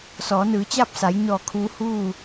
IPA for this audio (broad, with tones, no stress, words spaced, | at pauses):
sɔː˩˧nɯː˩˧t͡ɕaː˥˨p̚sa˩˧j ɲɔː˧˩kʰuː˧ huː˥˨